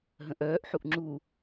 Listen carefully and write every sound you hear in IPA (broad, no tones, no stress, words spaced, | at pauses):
ɦə̃ʔœːʔħuʔ ŋ͡ǁu